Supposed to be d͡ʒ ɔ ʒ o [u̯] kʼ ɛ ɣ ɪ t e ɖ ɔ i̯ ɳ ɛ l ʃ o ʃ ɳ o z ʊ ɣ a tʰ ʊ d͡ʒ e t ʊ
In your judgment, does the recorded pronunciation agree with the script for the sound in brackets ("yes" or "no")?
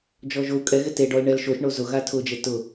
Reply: yes